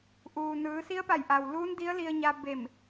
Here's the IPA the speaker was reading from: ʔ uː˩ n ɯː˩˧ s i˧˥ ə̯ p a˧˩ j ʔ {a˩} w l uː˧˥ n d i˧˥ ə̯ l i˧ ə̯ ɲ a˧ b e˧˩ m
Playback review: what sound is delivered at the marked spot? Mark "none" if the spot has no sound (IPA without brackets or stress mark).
a˩